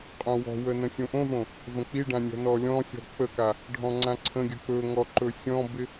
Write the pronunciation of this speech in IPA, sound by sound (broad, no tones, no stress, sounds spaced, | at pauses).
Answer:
qʼ õ w ɔ̤ w ə n ə̃ sʲ õ ʔ õ v õ | v ə̃ k͡p i ɖ ã nʲ ɔ̤ n ɔ lʲ ɔ̃ sʲ ɔ̤ k͡p ə k a | ɖʱ ɔ̃ ŋ͡ǀ ã ǀʰ ə̃ ɡʲ ə k͡p ɵ ŋ ɔ ǃ ɵ sʲ ɔ̃ b ɪ